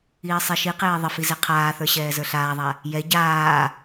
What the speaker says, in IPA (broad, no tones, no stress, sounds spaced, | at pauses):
iː sˤ e ʃ i q eː ðˤ ə f i z e qʰ aː θ ə˞ ɕ ɛː z ə˞ ɬ aː ðˤ a | j ɛ ɟ aː